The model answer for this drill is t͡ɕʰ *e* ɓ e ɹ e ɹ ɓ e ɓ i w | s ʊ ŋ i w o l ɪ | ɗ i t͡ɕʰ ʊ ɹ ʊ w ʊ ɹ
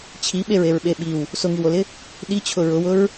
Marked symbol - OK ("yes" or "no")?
no